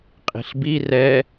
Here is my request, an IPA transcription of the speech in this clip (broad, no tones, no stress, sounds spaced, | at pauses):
qʼ i̤ ɬ b i r ɛ